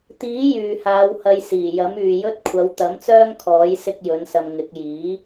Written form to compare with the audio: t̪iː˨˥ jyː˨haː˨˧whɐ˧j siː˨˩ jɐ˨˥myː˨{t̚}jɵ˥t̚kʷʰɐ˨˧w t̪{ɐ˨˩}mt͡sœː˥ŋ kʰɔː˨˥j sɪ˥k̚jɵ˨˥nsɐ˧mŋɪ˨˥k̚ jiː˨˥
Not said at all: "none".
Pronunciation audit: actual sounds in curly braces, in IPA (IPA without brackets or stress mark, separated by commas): none, ɐ˨˥